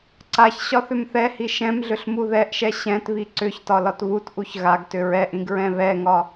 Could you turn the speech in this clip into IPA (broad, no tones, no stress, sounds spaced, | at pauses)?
ǀ a ç ɕ ɒ θ ʏ m θ ɛ h i ʃ ɛ̃ m ɮ ʏ ɬ m u ð ɛ ʔ ʃ ɛ ɕ ɛ̃ t β i ǀ ʏ ç t ɒ l ɒ t β u t ʔ u ç ɣ a ɡ t ʏ ɹ ɛ ʔ ĩ ɡ ɹ ɛ̃ β ɛ ŋ ɒ